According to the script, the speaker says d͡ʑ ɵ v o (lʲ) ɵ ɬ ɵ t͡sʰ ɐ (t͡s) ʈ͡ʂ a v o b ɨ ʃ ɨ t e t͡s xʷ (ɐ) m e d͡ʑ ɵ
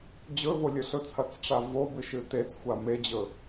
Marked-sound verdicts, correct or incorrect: correct, correct, incorrect: a

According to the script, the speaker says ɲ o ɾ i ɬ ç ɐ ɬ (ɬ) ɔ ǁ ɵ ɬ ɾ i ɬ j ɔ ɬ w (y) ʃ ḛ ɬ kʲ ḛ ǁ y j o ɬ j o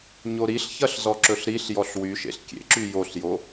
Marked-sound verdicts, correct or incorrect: incorrect: z, correct

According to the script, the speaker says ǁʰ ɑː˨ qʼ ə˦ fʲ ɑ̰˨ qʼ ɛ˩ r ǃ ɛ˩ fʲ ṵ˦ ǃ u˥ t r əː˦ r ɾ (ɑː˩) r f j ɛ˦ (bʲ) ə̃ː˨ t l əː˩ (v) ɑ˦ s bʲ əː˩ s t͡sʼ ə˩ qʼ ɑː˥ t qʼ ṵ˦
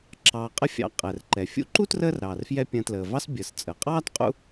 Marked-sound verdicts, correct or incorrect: correct, incorrect: pʲ, correct

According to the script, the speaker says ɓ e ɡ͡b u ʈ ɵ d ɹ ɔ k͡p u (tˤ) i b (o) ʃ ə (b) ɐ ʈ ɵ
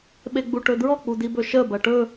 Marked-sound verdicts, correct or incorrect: incorrect: d, incorrect: ɵ, correct

